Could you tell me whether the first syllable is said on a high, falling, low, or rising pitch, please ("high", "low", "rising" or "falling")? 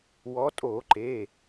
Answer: rising